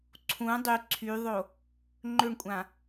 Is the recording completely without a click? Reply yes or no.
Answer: no